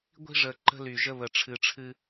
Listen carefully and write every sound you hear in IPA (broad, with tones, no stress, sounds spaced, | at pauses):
ɡʷ i̤˦ ʐ ə˨ ǃ ə̤˦ l y˨ ʒ ə˦ β ə˨ ʈ͡ʂʰ ɨ˨ ʈ͡ʂʰ ɨ˦